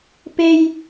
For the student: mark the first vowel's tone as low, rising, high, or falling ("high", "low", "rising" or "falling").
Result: high